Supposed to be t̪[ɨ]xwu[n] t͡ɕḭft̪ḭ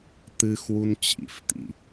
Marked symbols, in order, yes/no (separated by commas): yes, yes